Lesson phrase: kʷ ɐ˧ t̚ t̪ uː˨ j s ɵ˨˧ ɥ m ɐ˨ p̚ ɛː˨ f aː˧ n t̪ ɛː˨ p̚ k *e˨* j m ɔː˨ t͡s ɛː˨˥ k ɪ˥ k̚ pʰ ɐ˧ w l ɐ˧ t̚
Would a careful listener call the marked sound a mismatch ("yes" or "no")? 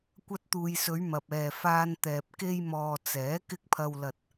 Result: yes